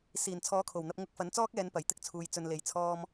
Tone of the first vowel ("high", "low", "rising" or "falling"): low